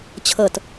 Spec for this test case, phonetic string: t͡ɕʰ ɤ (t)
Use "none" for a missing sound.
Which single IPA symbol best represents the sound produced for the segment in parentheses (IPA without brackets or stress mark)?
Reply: t